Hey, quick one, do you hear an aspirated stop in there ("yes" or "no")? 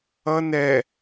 no